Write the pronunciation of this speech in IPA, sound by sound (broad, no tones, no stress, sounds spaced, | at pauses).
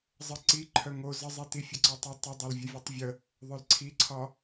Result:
zˤ ə ǀ i ǃʰ œ ŋ o z ə zˤ i t i fʲ ə ǀ ɒ tˤ ə tˤ ə dˤ o l vʲ ə vʲ œ tˤ vʲ ə | ðˤ œ l ǀʰ i ǀʰ ɒ